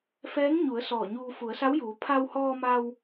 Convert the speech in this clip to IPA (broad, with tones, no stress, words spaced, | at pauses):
fɛː˧˥ŋɲu˩˧ə̯ sɔː˧˩ɲuː˧ fu˩˧ə̯sa˧˥wjuː˩˧ pʰa˧whɔː˧ma˧w